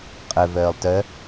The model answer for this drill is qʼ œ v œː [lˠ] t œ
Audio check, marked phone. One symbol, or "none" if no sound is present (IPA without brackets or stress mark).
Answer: lˠ